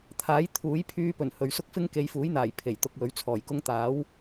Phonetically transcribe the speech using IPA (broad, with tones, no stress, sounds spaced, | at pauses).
t̪ʰ aː˨˥ j t̪ʰ uː˨˥ j pʰ yː˧ p ɵ˨˩ n h ɵ˨ ɥ s ʊ˥ k̚ f ɪ˥ ŋ k e˨˧ j f uː˨˥ j n̪ aː˨˩ j pʰ e˨˩ j t̪ ʊ˧ k̚ w ɵ˨˥ ɥ t͡sʰ ɔː˨˩ j k ʊ˥ ŋ t̪ aː˨˥ w